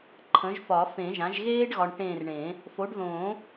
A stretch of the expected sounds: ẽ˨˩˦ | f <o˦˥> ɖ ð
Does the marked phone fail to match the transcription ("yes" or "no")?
yes